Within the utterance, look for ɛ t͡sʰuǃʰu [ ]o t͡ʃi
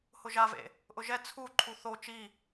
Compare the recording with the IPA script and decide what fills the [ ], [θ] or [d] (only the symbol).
θ